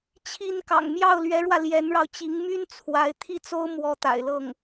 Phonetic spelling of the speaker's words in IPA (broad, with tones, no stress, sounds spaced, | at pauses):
t͡ɕʰ i˥ n k ɑ̰˨˩ ŋ m j ɑ˥˩ ʊ̯ l ɥ ɛ˧˥ ɻ w ä˧ l j ɛ˧˥ n ɻ ɑ˧ ʊ̯ t͡ɕ i˧˥ ŋ m y˥ n t͡sʰ w a˧˥ ɪ̯ t̪ʰ i˥˩ t͡s o˥ ʊ̯ m w ɔ˧˥ t̪ a̰˨˩ ɪ̯ l ɤ˥˩ ŋ